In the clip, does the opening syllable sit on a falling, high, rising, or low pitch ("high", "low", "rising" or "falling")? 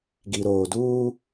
low